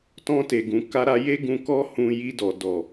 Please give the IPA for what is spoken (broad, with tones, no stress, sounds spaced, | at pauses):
t ɔ̃˧ t e˨ ɡ ũ˨ k a˧ ɾ a˧ j e˦ ɡ ũ˧ k ɔ˦ h ũ˧ j i˧ d ɔ˨ d ɔ˨